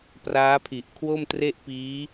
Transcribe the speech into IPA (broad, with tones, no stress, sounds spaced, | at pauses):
p r aː˦˥ pʰ i˨˩ ʔ kʰ w o˥˩ m t r e˥˩ ʔ p iː˦˥